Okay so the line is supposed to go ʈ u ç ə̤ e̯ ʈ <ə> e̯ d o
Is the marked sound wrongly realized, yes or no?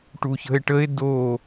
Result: no